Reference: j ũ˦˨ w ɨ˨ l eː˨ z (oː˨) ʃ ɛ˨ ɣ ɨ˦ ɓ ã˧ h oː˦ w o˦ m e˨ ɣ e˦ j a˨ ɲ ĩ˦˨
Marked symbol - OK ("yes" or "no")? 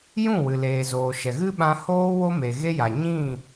yes